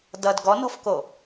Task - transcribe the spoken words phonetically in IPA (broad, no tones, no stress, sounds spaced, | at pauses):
d ʌ d ɡ ɔ n ɔ̤ f k o